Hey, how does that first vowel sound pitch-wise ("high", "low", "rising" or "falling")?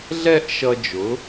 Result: falling